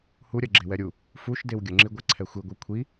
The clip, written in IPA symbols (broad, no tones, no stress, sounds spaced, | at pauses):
h u ɾʲ ɜ ɡ͡ǁ e w ɛ ɾʲ u | f u ʃ d e w ɡʲ ə ŋ͡ǁ i ɡʷ ɛ ǀʰ ɛ xʷ i ɡʷ i kʷʰ i